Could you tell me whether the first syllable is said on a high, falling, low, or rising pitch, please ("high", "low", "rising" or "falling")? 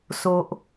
low